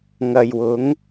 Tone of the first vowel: low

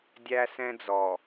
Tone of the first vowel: high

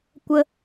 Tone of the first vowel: high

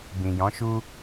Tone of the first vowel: low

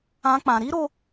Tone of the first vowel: high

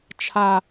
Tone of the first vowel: high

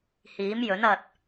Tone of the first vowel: rising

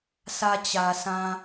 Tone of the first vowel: high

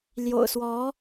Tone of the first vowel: low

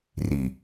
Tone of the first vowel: low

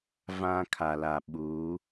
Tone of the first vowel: high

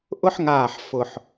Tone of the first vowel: high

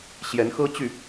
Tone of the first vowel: rising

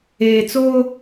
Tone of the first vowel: low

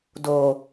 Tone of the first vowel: low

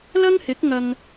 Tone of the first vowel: high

